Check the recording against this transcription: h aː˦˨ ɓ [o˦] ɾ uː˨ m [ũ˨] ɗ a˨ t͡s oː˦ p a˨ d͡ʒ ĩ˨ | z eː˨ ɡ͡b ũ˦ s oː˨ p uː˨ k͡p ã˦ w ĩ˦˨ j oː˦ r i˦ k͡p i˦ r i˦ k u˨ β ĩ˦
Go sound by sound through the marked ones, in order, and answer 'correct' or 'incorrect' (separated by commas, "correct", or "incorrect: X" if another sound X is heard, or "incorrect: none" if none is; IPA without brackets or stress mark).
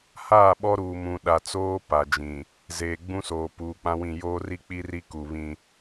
incorrect: ɔ˦, correct